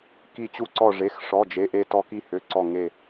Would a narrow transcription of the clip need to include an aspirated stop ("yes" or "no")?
no